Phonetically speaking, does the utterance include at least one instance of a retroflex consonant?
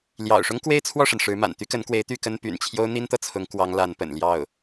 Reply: yes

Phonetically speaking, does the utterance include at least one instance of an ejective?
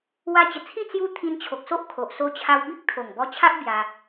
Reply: no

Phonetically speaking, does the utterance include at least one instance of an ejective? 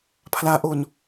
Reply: no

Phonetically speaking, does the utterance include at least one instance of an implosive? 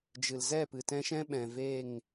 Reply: yes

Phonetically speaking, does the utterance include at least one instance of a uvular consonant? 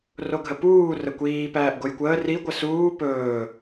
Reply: no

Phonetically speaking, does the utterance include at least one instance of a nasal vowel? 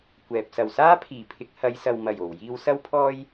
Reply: no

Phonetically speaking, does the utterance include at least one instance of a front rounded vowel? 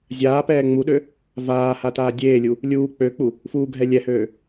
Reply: yes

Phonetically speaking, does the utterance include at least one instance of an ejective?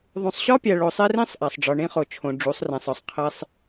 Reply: no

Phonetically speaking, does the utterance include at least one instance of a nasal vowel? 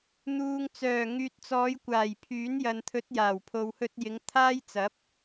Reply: no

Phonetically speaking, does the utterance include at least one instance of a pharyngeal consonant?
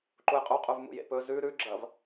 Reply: no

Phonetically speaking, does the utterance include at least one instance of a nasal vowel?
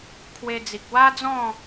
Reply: yes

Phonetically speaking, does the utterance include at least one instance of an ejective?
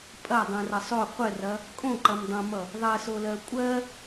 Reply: yes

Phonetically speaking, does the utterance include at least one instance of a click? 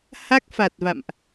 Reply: no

